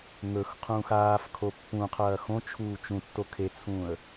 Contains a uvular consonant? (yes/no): yes